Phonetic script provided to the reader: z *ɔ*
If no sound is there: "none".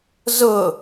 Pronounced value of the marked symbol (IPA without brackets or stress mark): ʊ